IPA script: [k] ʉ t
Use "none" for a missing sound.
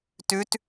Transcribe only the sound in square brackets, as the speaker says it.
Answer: t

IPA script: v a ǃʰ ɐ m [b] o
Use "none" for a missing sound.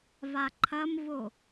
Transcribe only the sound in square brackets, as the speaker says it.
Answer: v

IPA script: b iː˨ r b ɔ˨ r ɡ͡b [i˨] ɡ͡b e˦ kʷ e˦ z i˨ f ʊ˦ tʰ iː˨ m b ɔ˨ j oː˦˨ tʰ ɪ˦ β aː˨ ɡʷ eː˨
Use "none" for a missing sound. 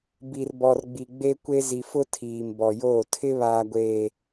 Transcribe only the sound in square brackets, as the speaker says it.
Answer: i˨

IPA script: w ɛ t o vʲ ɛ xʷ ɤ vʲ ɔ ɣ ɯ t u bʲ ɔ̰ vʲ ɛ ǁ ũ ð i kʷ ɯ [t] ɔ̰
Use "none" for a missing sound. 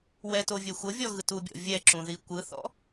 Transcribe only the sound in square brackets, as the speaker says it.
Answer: θ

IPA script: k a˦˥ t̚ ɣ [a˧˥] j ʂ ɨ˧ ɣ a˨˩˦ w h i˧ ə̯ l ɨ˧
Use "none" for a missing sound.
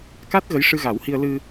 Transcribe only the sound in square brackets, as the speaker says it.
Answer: ə˧˥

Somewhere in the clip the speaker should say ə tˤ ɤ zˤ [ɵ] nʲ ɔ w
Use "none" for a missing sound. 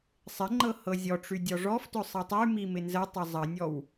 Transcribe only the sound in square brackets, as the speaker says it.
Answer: ə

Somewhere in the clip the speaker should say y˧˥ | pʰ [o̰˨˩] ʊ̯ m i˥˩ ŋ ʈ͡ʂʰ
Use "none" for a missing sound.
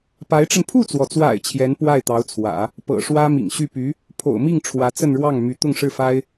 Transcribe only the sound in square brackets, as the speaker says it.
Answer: o̰˨˩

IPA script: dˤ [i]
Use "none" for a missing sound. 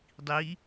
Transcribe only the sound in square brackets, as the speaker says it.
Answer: i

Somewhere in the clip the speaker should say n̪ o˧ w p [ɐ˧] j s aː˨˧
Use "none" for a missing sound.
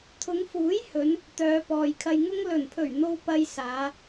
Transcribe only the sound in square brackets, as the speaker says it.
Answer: ɐ˧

